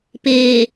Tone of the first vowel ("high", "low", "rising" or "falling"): low